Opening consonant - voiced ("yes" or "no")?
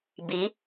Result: yes